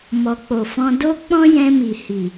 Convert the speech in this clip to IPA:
mɔ˨k͡po˨fɔ̃˧ do˦ k͡pɔ̃˦jɛ̃˧mi˨ hi˨

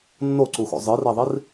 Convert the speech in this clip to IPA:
nːoǀuxo̰ zˤɯreðˤir

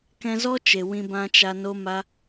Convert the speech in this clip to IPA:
kɛ̃˧zɔ˦t͡ʃe˨ wĩ˧bã˧t͡ʃa˧ no˦ma˦

